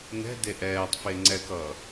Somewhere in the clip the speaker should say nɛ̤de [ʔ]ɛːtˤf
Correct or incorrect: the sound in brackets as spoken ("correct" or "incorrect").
correct